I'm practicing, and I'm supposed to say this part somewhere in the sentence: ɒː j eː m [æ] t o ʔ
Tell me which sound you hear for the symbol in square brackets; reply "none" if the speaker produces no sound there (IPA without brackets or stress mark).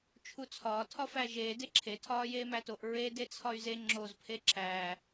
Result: æ